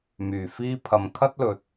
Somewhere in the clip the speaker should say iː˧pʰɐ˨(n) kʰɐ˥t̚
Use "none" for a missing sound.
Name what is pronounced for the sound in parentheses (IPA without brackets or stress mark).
m